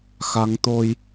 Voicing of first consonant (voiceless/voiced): voiceless